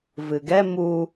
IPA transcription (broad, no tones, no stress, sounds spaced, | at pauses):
v ɨ ɡ ɛ m u